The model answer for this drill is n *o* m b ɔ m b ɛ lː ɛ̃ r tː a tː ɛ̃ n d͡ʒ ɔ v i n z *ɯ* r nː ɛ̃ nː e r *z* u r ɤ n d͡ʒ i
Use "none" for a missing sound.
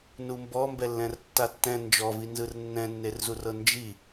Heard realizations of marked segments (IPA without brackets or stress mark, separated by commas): u, ɯ, z